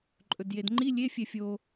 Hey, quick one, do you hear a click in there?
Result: yes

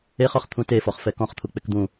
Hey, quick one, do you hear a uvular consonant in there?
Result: yes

